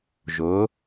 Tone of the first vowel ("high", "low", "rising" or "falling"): rising